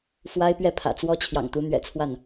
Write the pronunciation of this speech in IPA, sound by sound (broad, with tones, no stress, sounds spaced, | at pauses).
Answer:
f w a˥ ɪ̯ p ɥ ɛ˥˩ pʰ ä̰˨˩ t͡s w ɔ˥ t͡ɕʰ j ɑ̰˨˩ ŋ t̪ u˧˥ n̪ ɥ ɛ̰˨˩ t͡sʰ w a˥˩ n